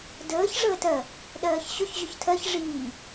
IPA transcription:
dəːç ʐəːtɜ | ɗɜːçɕʊç ʑʊçtʰɜç ʐiː

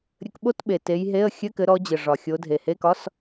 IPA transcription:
ɾʲɘ˨˦kɓo˧˥˧tɓe˨˩ te˨˦jɦe˧˥˧ə̯ xʲɘ˧˥˧kɘ˨˦ɾɔ˨˦d͡ʑɘ˨˩ ʐɒ˨˩xʲo˨˦dʱe˨˩ he˧˥˧kɒ˧˥˧s

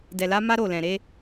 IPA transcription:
dɛ˨la˨˦ ma˦ɾo˦˨lɛ̃˨ ɾe˨˦

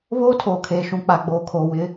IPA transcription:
βoː˦tʰoː˨kʰeː˨ ʃũ˨k͡pa˨ɡ͡boː˨ kʰoː˨wɪ˨˦

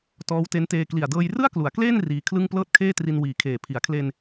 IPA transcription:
tɔː˦˥wte˦˥nteː˧ kli˨˩a̯dɤː˧jrɯ˥˩a̯klu˩˦a̯ kleː˥˩n riː˧kʰlɯ˥˩ŋ plɤː˥˩t̚kʰeː˥˩tri˧n wiː˨˩kʰeː˨˩ pʰi˩˦a̯kʰle˧n

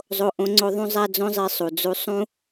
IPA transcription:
zˤo˦ʔõ˦ŋ͡ǀo˦ ðˤũ˦zˤæ˦d͡zõ˦zˤi˧ sˤu˨d͡zu˧sˤũ˦

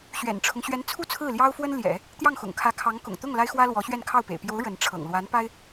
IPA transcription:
ɕɥɛ̰˨˩nʈ͡ʂʰʊ˦ŋ ɕɥɛ˧˥nt͡sʰu˥˧ t͡sʰɹ̩˥˩ljɑ˥ʊ̯fwə˥n ljɛ̰˨˩˦ | t̪jɑ˥˩ŋxʊ̰˨˩ŋ kʰä˧˥kʰɑ˧˥ŋ kʊ̰˨˩ŋ t̪ʊ˥˩ŋ la˥ɪ̯xwä˥lwɔ˧˥ɕɥɛ˥˧n kʰɑ˥˩ʊ̯pḛ˨˩ɪ̯ pjo˧˥ʊ̯ ɻə˧˥nʈ͡ʂʰɤ̰˨˩ŋ lwa˧˥npa˥ɪ̯

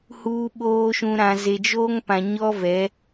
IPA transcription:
huː˨ɓoː˨ʃũ˨ ɾã˨ze˨d͡ʒoː˦ŋ pã˨ɲɔ˦vɛ˨˦

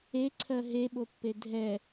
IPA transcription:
eǀʰɜ ɦeɓopːe dʱɛ

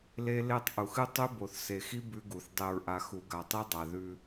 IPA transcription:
le˦le˦tˤ ʔu˨xɨ˦tˤʉ˦ bo˨θse˨xi˦ bʉ˦ɡu˨θ dˤe˨ɹʔa˨ xu˨ɡa˨tˤi˦ dˤa˨ðʉ˦

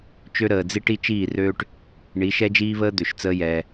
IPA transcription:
t͡ʃø˦ɾəː˨d͡zi˦ʈ i˦t͡ʃiː˦˨røː˦ʈ | ɳi˨˦ʃɛ˦d͡ʒiː˦βəː˦ d̪ø˨ʃt͡səː˦jɛː˧

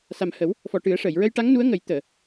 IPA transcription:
sa˨˩mhə˨˩˦w | fɔ˨˩ʈɨ˨˩˦ə̯ʂəː˨˩˨j ɹə˧jʈa˧˥ŋnu˧˥ə̯ ŋə˨˩˦jt̪əː˨˩˨

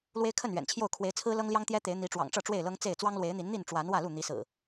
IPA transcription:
lwe˦ɪ̯kʰə˥˨nɥɛ̰˨˩nt͡ɕʰjo˥˨ʊ̯ kʰwe˨˦ɪ̯ t͡sʰɹ̩˦lɤ˦ŋljɑ˦ŋ t̪jɛ˦t̪e˨˦ɪ̯n̪i˨˦ʈ͡ʂwɑ̰˨˩ŋ ʈ͡ʂɤ˥˨ʈ͡ʂwe˥˨ɪ̯lɤ˦ŋ t͡se˥˨ɪ̯ t͡swɑ˦ŋlwe˨˦ɪ̯n̪i˨˦n n̪i˥˨nʈ͡ʂwa˨˦n wä˥˨lu˥˨n̪i˨˦sɹ̩˨˩

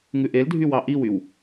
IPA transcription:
ŋʉʔeldʱy wɑʔiwyw

